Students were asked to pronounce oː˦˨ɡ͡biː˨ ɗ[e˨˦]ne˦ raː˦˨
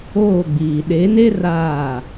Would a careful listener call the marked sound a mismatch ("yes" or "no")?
no